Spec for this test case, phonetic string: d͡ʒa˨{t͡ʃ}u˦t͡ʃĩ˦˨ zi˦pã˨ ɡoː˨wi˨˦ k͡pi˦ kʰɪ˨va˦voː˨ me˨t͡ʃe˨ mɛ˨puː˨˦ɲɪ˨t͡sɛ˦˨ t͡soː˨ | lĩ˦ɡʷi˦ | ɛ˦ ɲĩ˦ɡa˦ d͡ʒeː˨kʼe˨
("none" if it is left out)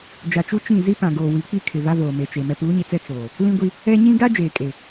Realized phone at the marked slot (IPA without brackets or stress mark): t͡ʃ